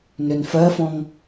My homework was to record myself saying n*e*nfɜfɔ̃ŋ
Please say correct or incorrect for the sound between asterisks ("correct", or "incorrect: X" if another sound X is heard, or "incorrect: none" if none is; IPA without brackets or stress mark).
incorrect: ø